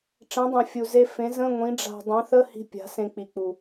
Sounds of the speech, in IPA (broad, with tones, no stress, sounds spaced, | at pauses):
ʈ͡ʂ ɛ̃˨˥ dˤ ã˨˩ fʲ u˨˩ z e˧ f ẽ˨˥ z ə̃˧˥˧ ŋʷ ĩ˨˥ ɖ͡ʐ a̤˧ dˤ ɛ̃˨˥ θ ə˧˥˧ h i̤˧ pʲ a̤˨˥ s ẽ˧ k͡p i˨˩ k͡p u˨˩